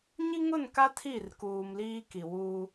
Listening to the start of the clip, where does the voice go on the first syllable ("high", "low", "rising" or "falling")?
high